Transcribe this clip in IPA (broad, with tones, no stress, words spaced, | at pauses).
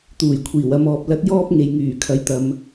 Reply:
t̪uː˨˩jkʷʰiː˨˩w ɐ˨˧mɔː˨p̚ lɐ˧t̚jɔː˥p̚ ŋe˨jŋyː˨˩ kʰɐ˨˧jt̪ɐ˨m